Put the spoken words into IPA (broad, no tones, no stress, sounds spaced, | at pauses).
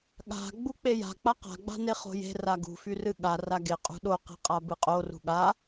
ɠ a̤ ɡ͡b u k͡p e j a̤ k͡p a q a̤ ɡ͡b a̤ n e χ o̤ j e̤ r a ɡ ṳ f y r ɨ ɠ a r a ɡ e qʼ ṳ ɗ o q e̤ qʼ a b ɨ qʼ o r ṳ ɠ a